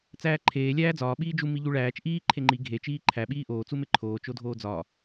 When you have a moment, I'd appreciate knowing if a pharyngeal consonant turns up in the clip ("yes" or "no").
no